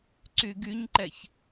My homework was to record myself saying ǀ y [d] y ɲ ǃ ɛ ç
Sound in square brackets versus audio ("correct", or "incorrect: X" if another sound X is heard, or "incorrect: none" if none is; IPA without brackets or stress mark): incorrect: ɡ